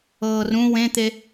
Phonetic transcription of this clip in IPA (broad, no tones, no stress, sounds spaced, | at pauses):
ɤː r ũ w ẽ t̪ e